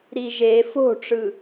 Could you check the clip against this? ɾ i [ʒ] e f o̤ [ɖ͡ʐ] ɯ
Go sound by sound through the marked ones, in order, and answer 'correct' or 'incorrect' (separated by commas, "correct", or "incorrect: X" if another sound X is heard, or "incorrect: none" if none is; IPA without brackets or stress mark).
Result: correct, incorrect: ʈ͡ʂ